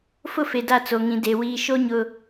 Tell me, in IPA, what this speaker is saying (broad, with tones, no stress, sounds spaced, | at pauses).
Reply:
f ʊ˦ f e˨ d a˦ t͡s o˨ ŋ ĩ˨ d e˨ w iː˨ ʃ o˦ ɲ ʊ˦